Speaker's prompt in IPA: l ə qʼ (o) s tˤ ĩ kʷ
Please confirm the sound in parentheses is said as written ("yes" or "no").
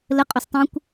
yes